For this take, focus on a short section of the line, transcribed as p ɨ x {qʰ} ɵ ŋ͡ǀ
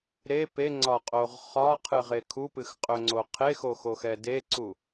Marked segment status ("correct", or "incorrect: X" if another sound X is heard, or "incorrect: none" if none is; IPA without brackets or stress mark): incorrect: qʼ